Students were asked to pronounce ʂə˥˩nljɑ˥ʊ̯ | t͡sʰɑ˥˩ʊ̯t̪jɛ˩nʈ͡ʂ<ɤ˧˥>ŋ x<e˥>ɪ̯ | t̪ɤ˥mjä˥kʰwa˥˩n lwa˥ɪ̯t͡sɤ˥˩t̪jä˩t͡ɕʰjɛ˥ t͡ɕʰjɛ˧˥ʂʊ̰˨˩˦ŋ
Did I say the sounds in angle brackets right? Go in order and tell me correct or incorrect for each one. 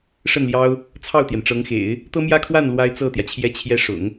correct, incorrect: ḛ˨˩˦

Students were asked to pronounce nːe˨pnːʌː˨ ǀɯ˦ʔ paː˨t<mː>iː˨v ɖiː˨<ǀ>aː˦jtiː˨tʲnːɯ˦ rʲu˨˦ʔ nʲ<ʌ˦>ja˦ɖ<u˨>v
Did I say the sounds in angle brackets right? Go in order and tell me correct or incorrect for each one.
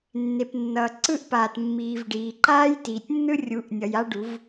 correct, incorrect: ǃ, incorrect: ʌ˨, incorrect: u˨˦

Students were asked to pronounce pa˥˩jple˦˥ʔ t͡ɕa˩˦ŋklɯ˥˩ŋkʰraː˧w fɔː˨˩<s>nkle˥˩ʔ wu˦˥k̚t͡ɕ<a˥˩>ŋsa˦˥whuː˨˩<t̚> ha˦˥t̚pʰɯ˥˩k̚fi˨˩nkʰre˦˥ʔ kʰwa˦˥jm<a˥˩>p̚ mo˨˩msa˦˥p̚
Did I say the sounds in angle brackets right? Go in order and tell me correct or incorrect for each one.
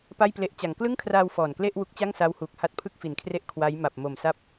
incorrect: none, correct, incorrect: k̚, incorrect: a˨˩

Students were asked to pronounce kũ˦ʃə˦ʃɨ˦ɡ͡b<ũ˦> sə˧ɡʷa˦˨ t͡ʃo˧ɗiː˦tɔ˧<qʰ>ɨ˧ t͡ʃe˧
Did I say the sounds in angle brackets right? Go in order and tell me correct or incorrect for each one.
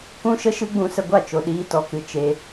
incorrect: ũ˧, incorrect: k

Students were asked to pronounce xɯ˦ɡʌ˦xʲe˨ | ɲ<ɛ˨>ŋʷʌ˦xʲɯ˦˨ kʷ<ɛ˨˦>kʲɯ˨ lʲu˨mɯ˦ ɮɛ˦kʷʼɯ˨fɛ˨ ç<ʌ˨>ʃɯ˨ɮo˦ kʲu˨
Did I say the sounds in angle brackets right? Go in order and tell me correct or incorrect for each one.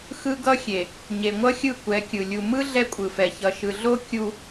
incorrect: e˨, correct, correct

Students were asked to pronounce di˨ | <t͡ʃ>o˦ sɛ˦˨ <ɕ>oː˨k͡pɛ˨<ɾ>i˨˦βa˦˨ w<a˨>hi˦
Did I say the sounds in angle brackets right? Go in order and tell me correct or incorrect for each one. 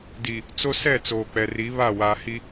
incorrect: t͡s, incorrect: t͡s, incorrect: r, incorrect: aː˨

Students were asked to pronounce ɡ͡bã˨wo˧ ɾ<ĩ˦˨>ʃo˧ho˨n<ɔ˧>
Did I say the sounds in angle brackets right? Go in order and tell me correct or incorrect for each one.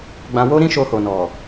incorrect: ĩ˦, incorrect: ɔ˨

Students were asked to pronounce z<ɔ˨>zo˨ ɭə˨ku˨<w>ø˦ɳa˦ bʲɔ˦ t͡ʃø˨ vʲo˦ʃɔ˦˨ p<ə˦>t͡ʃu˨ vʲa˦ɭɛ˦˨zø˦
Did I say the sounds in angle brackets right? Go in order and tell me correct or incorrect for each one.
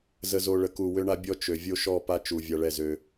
incorrect: ə˨, correct, incorrect: a˦

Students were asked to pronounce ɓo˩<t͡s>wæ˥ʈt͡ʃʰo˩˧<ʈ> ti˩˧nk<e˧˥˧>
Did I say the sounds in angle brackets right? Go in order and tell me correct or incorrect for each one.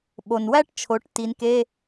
incorrect: n, correct, correct

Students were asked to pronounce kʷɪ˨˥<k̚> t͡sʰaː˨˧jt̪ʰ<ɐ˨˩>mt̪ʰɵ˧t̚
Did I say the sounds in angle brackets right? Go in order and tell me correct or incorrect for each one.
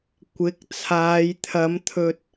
correct, incorrect: ɐ˨˧

